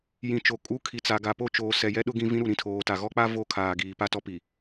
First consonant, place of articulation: palatal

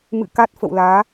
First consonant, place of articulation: labial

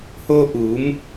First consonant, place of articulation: glottal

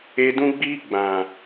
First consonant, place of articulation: alveolar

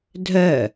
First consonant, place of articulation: alveolar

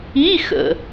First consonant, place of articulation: velar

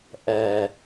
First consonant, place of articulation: glottal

